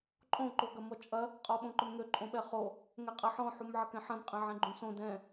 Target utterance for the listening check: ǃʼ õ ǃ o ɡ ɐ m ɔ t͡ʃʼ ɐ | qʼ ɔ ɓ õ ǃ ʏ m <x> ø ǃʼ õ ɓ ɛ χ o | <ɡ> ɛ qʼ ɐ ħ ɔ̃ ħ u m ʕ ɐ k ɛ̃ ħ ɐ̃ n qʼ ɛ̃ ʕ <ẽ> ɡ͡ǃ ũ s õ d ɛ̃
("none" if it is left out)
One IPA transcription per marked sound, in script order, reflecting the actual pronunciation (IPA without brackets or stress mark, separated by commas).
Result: ŋ, ŋ, ɛ̃